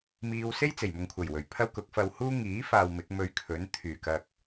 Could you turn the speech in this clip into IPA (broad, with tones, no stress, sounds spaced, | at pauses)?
m iː˧ w s e˥ j t͡s e˨˩ j m ʊ˨ ŋ kʷʰ ɐ˨˩ j w ɵ˨˩ ɥ pʰ ɐ˥ w k ʊ˨˥ k̚ f ɐ˧ w h uː˥ ŋ iː˨˥ f aː˨ w m ɪ˨˥ k̚ m ɵ˧ ɥ kʰ ɵ˨˥ n t̪ʰ yː˨˩ k ɐ˨ k̚